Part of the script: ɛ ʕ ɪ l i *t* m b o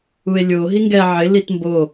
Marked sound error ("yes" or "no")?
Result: no